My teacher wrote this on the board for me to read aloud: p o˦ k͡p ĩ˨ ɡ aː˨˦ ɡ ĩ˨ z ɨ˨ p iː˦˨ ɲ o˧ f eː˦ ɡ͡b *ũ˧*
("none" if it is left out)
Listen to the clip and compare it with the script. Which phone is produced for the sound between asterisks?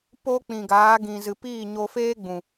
ũ˨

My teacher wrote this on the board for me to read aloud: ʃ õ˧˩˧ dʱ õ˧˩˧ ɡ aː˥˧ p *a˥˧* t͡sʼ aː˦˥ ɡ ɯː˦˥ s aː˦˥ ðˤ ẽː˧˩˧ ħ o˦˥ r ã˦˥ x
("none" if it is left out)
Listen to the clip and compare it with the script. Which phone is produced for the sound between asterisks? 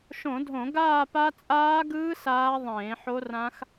a˦˥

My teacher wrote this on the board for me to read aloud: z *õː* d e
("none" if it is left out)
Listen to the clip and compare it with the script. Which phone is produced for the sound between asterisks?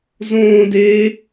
õː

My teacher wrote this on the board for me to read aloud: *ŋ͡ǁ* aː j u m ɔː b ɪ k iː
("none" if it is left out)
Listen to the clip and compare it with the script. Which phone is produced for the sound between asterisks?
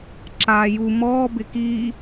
ǁ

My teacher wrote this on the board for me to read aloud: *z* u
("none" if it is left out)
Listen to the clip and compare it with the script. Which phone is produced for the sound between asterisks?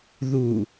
ð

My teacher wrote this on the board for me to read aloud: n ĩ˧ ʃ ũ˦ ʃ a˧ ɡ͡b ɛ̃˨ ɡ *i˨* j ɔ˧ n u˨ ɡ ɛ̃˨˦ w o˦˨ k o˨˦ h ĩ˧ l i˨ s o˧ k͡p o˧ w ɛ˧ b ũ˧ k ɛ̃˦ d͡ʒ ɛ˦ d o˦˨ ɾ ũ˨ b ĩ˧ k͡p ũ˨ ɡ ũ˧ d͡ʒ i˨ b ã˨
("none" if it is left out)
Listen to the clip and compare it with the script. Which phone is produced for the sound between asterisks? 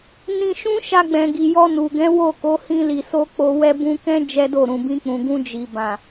i˨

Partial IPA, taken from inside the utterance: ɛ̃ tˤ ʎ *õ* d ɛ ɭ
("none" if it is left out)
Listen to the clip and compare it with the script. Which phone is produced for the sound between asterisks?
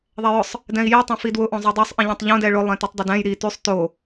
õ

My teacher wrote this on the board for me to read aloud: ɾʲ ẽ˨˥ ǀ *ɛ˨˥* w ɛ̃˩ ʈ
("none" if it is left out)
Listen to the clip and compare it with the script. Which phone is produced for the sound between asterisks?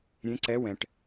ɛ˨˥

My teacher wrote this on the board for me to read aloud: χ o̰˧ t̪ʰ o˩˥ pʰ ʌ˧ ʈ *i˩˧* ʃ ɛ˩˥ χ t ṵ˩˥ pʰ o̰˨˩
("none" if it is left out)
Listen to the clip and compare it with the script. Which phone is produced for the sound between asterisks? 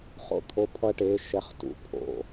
e˩˧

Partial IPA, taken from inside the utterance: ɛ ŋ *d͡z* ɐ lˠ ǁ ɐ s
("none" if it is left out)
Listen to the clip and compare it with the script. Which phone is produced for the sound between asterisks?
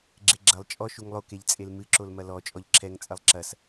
t͡sʼ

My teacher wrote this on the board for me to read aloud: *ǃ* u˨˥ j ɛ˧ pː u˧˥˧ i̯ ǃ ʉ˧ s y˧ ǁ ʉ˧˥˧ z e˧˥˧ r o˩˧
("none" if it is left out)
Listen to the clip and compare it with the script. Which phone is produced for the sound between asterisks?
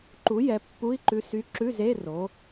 ǃ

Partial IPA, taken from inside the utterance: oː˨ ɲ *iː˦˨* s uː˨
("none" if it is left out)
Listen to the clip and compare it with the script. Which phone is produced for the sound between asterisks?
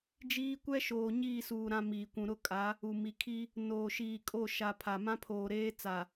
iː˦˨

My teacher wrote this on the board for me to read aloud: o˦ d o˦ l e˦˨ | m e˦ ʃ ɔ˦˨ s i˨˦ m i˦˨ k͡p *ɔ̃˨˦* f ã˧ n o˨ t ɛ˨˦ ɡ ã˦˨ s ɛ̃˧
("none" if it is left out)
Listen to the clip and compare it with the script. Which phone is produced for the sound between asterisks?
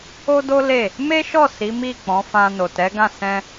ɔ̃˨˦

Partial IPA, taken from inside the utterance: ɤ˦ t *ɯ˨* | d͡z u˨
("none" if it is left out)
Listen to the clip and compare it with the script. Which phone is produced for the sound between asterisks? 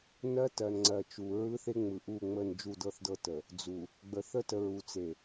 ə˨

